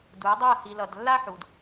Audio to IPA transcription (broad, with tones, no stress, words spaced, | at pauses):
du˨˦ə̯dˤi˦˨ə̯ hi˨ lʌ˨d lːa˦ħu˨d